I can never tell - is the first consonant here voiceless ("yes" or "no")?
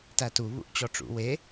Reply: yes